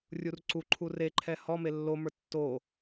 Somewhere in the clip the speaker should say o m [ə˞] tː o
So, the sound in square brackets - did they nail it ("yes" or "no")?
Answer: yes